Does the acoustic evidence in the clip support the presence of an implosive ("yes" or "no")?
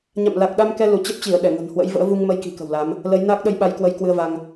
yes